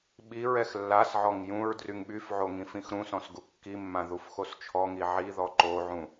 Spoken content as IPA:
ɓ i ɹ ɛ x lː a s ʕ ɔ ŋ j ũ ɹ d r y ŋ ɓ y f ʕ o ŋ ĩ f ĩ x ɾ ũ s ɔ̃ s ɡ u kː i mː ã ð u f x o s t͡ʃʰ ɔ ŋ i ʕ i ð ɔ ǃ o ʕ ũ

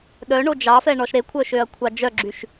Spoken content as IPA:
ɗ œ ɳ o d͡ʒ ɑ f ɛ ɳ ɔ ʃ ɾ e kʷʰ œ ʃ ø ɐ̯ kʷʰ ɑ d͡ʒ œ ɡ͡ǁ y ʃ

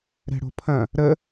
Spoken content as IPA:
ɾ ɛ̤ ɽ o̤ pʰ ɐ̃ | ɾ ə

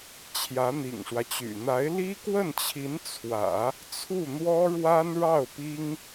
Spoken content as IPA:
t͡ɕʰ j ä˧˥ n̪ ḭ˨˩ ŋ ʂ w ä˦ t͡ɕ y̰˨˩ n̪ a˧˥ ɪ̯ l i˥ k w ə˥˩ n t͡ɕʰ i˧˥ n t͡sʰ w ä̰˨˩˦ | t͡sʰ u˥˩ n̪ w ɔ˥ ɻ w a˥ n ɻ ɑ˥˩ ʊ̯ p i˥ ŋ

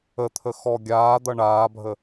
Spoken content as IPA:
ə t̪ʰ ə x ɔ ɡʲ aː d̪ ʌ ɳ aː bʱ ə

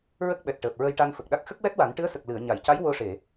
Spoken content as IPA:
ɹ ə˦˥ k̚ ɓ ɛ˨˩ t̚ ʈ əː˨˩ p̚ ɹ ə˧ j ʈ a˧ n f ə˨˩ k̚ ɗ a˦˥ k̚ x ə˦˥ k̚ w ɛ˦˥ t̚ w a˨˩˦ n ʈ ɨ˧˥ ə̯ s ə˨˩ k̚ l ɨ˨˩˨ ə̯ ɲ a˨˩˨ j c a˧˥ j w o˧ ʂ e˨˩˨

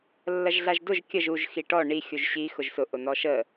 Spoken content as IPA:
lː ɐ ʒ ɮ a ʒ d ʊ ʒ kʲ ə ʒ u ʒ x i ʈ ɔ ɳ i xʲ u ʒ ɕ i x ʊ ʒ s ʊ ʔ ʊ n ɔ ʃ ə

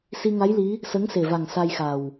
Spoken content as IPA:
s i˧ ŋ a˧˥ j l i˧˥ | s ə˧˥ ŋ s e˨˩ v a˨˩ ŋ s a˧ j x a˨˩ w

